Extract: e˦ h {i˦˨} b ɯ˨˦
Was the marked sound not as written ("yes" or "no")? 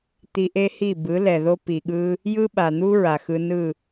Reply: no